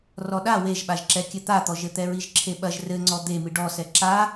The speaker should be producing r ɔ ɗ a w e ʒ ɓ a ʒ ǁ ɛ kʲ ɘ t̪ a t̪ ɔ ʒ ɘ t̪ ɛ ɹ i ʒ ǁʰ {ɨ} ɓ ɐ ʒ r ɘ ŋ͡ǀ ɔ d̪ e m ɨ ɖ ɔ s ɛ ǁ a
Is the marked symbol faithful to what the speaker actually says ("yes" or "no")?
no